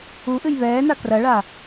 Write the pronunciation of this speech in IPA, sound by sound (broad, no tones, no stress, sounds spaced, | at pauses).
u ʔ ɨ j β ɛː n a k r ɐ ɭ a